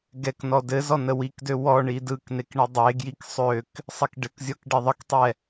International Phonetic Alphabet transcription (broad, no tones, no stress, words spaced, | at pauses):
ɡɛknɔ dɘ zɔnəwikdø wɔ ɳidɯknek ɳɘdˤeɡjik sˤøk | sˤikɖɘkzʲɔk ɖeðˤəktˤɛ